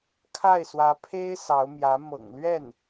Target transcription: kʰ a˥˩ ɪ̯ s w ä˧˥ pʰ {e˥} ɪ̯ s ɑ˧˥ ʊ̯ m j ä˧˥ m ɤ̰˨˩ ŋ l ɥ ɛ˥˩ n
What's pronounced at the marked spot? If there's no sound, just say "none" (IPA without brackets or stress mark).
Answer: e˥